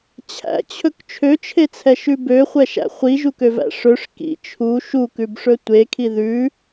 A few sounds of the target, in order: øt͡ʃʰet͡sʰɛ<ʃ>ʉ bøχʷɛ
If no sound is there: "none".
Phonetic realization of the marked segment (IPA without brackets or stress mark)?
ʃ